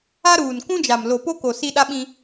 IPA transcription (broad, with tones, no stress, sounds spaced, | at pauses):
a˦ ɾ uː˨ n k ũ˦ d͡ʒ a˨ m l o˨ p o˦ k o˨ s i˦ ɗ a˦ ɓ ĩ˦